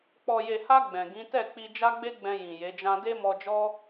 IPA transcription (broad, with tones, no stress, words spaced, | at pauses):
k͡pɔ˨je˨ha˧ ɡ͡bɛ̃˨ɡĩ˨˦ tɛ˦˨k͡pi˧ d͡ʒa˦ɡ͡be˦ɡ͡bɛ̃˧ jĩ˨je˨˦d͡ʒã˦ de˦mɔ˧d͡ʒɔ˦